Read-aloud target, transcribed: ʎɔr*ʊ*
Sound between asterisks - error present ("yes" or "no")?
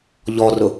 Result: no